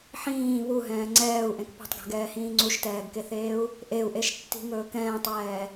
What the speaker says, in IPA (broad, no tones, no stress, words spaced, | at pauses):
ħĩː βuɦɛ̃ː ŋ͡ǀɛːu̯ʔẽk pṳtˤɡɛ̤ɡɛːhĩː ŋ͡ǀuʃtɛːɡkeθeːu̯ | ʔeu̯ʔeʃtːi̤ŋɵː kɛ̃ːtˤwɛː